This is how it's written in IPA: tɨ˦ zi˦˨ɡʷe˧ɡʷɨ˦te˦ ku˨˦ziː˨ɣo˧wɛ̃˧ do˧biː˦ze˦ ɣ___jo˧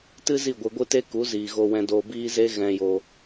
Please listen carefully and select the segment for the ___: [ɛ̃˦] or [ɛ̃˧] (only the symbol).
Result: ɛ̃˧